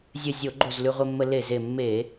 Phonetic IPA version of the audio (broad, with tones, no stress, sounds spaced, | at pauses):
zʲ ɘ˧˩ zʲ o˧˩˧ ɡ͡ǃ o˧˩ z l ʉ˧ ʁʷ ɘ˧ mː ə˧ l e˧˩ z e˧˩ mː e˧˩˧